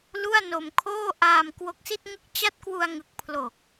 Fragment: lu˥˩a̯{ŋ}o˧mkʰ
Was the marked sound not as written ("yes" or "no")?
yes